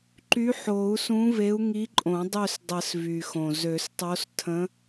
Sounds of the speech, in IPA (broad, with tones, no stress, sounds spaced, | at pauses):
ǃ y˧˥ ħ o˨˩˦ u̯ s ũ˧˥ v e˧˥ u̯ ŋ i˧˥ ǃʼ õ˨˩˦ dˤ ø˦˨ s dˤ ə˨˩˦ s v y˩ x õ˩ z ø˨˩˦ s tˤ o˧˥ s tʰ ə̃˧˥